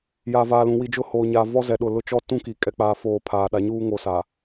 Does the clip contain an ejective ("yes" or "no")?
yes